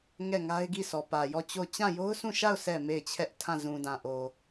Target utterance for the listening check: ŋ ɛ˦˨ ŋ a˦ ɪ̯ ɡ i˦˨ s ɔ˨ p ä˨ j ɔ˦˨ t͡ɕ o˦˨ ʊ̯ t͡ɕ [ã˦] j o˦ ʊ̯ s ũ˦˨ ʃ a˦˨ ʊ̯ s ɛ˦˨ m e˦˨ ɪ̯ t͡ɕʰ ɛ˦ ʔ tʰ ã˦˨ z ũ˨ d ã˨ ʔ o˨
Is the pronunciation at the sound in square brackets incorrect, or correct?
incorrect: ã˦˨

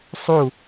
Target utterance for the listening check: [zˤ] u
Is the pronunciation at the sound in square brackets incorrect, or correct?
incorrect: sˤ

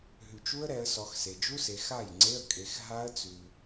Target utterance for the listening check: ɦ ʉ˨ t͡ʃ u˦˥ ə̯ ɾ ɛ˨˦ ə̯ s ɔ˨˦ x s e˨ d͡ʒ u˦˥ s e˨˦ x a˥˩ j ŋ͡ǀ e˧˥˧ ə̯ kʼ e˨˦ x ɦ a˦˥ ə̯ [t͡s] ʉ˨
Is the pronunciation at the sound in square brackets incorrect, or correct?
correct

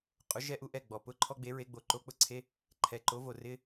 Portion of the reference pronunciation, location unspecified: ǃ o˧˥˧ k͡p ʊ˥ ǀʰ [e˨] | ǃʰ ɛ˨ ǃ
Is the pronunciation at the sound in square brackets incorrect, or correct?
incorrect: e˧˥˧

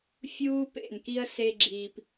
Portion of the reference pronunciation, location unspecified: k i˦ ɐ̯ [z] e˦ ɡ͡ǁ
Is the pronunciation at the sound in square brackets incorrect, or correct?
incorrect: s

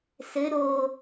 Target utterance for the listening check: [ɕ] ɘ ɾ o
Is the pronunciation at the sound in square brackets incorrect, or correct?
incorrect: s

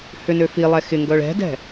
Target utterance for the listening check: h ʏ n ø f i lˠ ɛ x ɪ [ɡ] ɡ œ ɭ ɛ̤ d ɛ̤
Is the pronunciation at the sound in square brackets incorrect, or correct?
incorrect: ŋ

